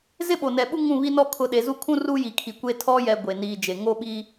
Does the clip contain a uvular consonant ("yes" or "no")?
no